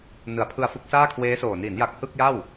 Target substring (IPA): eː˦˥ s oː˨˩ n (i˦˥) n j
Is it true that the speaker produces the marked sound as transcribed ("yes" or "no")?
no